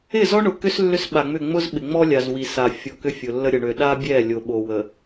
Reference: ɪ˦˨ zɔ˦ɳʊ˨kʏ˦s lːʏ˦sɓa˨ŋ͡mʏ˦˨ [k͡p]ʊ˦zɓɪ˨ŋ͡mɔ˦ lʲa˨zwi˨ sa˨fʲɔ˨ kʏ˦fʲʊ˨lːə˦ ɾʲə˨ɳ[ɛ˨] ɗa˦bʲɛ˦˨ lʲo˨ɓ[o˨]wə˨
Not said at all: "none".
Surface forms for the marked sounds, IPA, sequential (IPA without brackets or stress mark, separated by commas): ŋ͡m, ø˨, o˨